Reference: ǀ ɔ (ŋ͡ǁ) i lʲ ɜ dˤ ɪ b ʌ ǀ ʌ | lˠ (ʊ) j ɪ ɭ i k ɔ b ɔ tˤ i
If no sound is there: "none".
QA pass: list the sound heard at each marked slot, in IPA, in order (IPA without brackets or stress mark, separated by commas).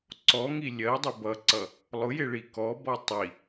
ŋ, ʊ